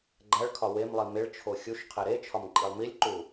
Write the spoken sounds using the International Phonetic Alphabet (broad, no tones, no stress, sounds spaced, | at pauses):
ɡ͡ǃ æ ɭ kʰ ɒ w e m lˠ i m e ɭ t͡ʃʰ o xʲ u ʃ qʰ e ɾ e t͡ʃʰ ɒ m ǃʼ i lˠ m i lʲ ǃ u